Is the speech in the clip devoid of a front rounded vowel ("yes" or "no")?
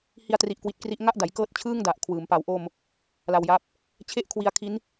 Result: yes